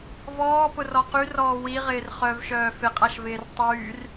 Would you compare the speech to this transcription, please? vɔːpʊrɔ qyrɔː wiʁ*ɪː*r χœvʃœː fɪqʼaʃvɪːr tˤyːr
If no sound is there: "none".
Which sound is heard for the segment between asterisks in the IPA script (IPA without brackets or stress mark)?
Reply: ɪː